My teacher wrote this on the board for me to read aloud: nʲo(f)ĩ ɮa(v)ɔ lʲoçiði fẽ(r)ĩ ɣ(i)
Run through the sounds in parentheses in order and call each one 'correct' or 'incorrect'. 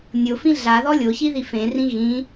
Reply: correct, incorrect: ð, correct, incorrect: ĩ

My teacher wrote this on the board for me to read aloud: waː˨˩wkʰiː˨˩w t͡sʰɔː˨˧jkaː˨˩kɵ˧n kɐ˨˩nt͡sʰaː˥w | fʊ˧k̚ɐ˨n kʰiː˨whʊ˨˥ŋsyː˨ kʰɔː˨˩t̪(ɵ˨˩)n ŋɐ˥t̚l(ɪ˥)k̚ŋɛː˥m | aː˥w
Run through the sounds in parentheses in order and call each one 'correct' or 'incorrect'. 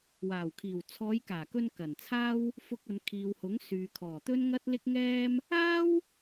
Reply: incorrect: ɵ˥, correct

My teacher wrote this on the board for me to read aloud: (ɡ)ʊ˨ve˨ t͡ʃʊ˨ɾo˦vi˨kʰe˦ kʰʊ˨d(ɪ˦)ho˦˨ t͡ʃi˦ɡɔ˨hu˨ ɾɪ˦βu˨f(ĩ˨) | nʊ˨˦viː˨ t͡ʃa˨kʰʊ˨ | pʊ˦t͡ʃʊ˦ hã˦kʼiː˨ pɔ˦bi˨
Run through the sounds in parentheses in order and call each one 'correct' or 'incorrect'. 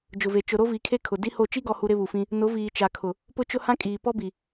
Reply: incorrect: d͡ʒ, incorrect: i˦, incorrect: ĩ˦

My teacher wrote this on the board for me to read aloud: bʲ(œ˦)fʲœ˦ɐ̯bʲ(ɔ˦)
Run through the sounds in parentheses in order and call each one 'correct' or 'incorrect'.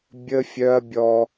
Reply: incorrect: ə˦, correct

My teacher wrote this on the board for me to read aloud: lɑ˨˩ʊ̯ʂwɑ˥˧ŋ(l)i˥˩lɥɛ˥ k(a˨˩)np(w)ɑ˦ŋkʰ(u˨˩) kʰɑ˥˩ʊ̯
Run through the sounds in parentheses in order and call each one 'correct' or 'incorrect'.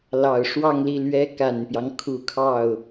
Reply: correct, correct, incorrect: j, correct

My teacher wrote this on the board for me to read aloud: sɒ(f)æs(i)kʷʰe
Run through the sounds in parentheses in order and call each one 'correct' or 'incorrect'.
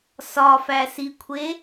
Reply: correct, correct

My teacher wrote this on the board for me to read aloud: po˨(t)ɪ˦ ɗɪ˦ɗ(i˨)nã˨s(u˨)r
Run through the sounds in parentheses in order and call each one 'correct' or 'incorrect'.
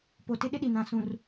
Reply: correct, correct, incorrect: ũ˨

